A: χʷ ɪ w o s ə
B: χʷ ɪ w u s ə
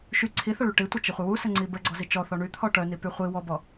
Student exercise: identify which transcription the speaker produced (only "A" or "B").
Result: B